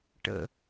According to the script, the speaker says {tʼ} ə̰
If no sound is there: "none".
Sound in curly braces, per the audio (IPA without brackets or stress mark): ʈ